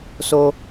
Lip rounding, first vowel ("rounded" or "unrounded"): rounded